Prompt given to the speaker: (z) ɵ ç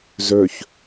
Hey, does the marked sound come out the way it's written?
yes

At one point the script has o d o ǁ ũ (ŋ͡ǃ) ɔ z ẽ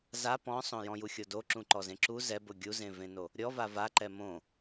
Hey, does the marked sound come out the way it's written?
no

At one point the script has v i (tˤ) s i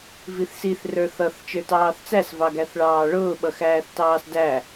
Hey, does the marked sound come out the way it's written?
no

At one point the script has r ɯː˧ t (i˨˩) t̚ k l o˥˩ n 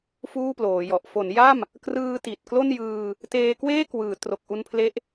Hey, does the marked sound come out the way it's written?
yes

